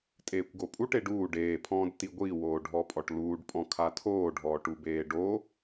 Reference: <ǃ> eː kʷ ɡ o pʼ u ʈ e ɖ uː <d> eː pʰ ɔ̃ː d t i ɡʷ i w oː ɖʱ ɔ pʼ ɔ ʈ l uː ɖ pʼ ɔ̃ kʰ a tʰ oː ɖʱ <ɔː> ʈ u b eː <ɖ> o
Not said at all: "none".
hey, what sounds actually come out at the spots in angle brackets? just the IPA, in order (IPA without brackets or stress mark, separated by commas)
tʼ, ɖ, ɔː, ɖ